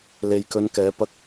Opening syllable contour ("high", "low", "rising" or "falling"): low